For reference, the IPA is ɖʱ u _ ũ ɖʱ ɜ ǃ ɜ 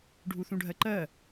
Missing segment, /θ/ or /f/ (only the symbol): θ